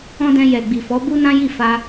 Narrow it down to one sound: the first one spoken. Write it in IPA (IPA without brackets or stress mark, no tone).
ɔ̃